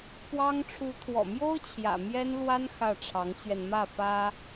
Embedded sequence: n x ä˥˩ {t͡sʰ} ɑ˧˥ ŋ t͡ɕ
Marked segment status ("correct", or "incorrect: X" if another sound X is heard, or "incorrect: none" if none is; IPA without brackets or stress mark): incorrect: ʈ͡ʂʰ